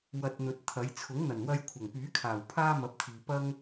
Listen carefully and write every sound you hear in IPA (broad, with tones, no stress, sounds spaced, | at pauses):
w ɐ˧ t̚ n̪ ɵ˨˥ t̚ t̪ʰ ɐ˨˥ j t͡sʰ ʊ˨˥ ŋ n̪ ɐ˨˩ n w ɐ˧ j kʷʰ ɐ˨˩ ŋ p yː˨˥ kʰ aː˨˩ w pʰ aː˥ m ɐ˨˥ p̚ t̪ʰ iː˨ p ɐ˥ ŋ